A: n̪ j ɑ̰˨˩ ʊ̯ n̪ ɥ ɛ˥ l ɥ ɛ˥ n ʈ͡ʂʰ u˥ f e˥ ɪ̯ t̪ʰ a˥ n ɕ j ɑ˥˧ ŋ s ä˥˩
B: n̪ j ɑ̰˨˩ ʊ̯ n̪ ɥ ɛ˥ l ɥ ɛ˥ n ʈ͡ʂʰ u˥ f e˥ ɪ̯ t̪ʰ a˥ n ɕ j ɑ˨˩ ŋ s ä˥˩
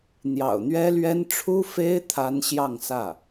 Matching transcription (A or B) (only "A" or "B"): A